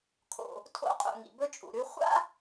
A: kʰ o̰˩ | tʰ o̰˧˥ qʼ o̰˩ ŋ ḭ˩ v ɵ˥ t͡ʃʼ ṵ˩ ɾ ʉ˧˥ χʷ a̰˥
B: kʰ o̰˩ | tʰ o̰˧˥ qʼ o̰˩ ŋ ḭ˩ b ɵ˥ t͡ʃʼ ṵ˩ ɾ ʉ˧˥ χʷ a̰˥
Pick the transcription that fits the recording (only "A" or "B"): B